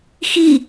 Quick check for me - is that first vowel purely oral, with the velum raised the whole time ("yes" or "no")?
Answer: yes